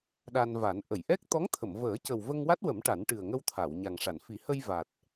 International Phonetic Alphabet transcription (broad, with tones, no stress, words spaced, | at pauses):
ɗa˧nva˨˩˦n ʔə˨˩˨jʔɛ˦˥k̚ t̪ɔ˧˥ŋt̪ʰə˨˩˨mvəː˨˩˦cə˨˩w və˧ŋwa˦˥t̚wə˨˩˦m ʈa˨˩˦nʈɨ˨˩ə̯ŋə˧wt̪ʰa˨˩˨w ɲa˨˩ŋʂa˨˩˨n fi˨˩˦hə˧j va˨˩t̚